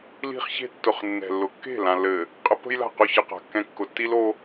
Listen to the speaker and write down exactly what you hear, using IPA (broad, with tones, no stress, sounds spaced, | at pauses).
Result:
l i̤˦ χ ç e̤˦ tː ʊ˨ χ nː ɛ̤˨ lː ʊ˨ kː e̤˦˨ l ã˨ lː ɘ˨ | qʼ ə˦ p ə̤˦ j l a̤˦˨ q ʊ˦˨ ç ə˦ q a̤˨ kː ɛ̃˦ kː ʊ˨ tː i˦ l o˦